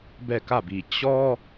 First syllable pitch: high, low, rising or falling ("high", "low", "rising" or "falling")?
falling